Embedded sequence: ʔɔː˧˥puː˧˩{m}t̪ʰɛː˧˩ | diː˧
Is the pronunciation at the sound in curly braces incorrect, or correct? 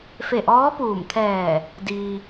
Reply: correct